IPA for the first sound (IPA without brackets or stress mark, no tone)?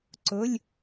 ǀ